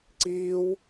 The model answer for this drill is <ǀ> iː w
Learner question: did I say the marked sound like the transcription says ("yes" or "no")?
yes